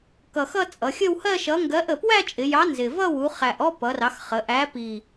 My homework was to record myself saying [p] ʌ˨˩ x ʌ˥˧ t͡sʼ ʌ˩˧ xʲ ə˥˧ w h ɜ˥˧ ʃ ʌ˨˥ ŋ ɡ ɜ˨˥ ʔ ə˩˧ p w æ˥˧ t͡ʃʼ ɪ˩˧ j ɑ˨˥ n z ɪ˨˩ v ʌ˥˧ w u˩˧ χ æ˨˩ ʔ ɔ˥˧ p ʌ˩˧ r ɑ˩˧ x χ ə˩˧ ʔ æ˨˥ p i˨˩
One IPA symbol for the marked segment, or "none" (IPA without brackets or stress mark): k